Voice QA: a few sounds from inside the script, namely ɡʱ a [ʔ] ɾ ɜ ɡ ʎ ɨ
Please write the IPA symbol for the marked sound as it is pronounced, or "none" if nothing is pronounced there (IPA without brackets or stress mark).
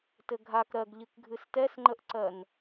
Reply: k